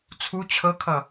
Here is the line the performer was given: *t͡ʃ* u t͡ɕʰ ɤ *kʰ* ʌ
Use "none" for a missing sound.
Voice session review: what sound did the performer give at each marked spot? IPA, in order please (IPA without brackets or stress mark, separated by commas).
t͡sʰ, kʰ